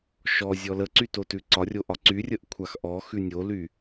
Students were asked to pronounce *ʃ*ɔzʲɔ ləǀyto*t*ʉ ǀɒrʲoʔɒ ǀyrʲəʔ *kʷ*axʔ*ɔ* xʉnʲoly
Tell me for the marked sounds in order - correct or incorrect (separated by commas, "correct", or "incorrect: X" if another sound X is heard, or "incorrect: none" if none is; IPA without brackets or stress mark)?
correct, correct, incorrect: kʷʰ, correct